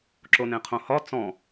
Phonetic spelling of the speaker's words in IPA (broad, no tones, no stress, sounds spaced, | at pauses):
ǁ o n ẽ qʰ õ h ɒ t͡s ɔ̃